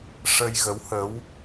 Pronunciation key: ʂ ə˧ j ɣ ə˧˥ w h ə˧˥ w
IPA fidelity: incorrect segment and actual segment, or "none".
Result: none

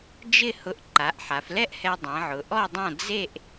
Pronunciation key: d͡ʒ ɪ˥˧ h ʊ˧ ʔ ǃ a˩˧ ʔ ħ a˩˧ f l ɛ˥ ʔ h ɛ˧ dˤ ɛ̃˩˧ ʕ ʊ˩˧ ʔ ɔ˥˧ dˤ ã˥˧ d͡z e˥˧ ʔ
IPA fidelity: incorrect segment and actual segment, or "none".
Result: none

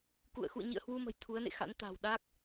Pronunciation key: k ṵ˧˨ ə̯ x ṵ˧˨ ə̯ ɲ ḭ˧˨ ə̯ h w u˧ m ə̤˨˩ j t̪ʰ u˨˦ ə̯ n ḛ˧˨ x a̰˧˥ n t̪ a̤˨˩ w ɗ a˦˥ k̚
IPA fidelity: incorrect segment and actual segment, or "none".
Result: none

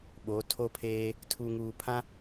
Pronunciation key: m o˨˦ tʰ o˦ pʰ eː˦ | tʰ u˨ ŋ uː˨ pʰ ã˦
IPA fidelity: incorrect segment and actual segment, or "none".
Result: m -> ɓ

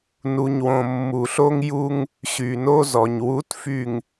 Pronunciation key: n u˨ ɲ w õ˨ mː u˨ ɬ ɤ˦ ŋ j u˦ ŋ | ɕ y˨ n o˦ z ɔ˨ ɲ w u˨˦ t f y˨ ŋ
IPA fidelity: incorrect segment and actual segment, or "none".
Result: ɤ˦ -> o˦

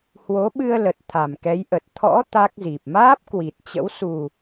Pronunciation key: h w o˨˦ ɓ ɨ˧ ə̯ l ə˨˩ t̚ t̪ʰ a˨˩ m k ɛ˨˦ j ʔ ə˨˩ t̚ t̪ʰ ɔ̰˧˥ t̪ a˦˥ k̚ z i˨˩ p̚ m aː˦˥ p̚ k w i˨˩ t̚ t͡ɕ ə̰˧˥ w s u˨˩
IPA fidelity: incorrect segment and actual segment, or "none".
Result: none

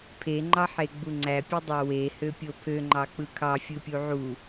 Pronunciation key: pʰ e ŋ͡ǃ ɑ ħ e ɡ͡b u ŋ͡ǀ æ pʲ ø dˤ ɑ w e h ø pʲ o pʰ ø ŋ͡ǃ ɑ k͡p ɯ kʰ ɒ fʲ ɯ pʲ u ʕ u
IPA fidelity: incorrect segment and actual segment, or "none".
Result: ɒ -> ɑ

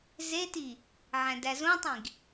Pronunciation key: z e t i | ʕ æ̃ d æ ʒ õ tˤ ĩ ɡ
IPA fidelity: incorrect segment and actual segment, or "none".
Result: ʒ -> z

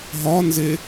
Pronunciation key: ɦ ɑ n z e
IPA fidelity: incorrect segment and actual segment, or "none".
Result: ɑ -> ɒ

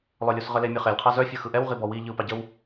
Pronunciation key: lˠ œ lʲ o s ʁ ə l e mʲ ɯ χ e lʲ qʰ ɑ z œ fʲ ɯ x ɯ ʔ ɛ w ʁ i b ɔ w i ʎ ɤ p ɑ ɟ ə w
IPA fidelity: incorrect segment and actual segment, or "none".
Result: ɤ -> ɯ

